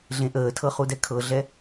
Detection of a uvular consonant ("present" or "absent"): present